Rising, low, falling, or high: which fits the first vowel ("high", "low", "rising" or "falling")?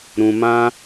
low